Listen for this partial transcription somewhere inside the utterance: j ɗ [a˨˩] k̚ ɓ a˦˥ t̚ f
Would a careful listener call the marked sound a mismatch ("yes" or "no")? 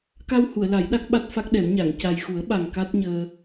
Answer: yes